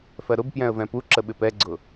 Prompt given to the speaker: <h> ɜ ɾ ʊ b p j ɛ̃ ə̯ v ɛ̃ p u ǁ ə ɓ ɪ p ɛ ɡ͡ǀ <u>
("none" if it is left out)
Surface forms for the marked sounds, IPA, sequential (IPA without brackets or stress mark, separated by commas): f, ʊ